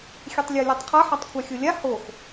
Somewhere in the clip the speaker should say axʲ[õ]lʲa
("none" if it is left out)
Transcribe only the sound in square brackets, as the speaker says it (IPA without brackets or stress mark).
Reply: o